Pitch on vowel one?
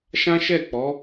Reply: high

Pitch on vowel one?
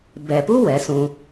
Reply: low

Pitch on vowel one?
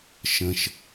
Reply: low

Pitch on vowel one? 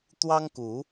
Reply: high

